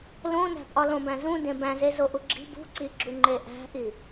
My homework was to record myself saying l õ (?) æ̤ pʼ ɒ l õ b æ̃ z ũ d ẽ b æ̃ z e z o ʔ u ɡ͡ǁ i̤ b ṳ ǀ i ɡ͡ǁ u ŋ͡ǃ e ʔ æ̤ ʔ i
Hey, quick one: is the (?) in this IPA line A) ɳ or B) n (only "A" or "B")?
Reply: B